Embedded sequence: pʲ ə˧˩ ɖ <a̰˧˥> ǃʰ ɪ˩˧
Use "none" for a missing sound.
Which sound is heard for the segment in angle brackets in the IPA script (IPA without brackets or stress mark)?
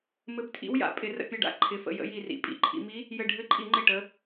a̰˧˥